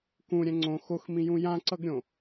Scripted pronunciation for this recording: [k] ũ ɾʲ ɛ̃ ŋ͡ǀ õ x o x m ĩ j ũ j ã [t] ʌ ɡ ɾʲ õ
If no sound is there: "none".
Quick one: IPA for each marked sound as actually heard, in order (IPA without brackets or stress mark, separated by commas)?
k, ǀ